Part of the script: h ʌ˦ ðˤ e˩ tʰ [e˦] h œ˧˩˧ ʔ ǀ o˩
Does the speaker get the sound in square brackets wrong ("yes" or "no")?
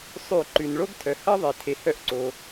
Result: yes